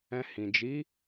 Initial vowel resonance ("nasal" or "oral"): nasal